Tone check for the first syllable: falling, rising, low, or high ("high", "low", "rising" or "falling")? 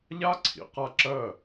high